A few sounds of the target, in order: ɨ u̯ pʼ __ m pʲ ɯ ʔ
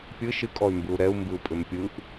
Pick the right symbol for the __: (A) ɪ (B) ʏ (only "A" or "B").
B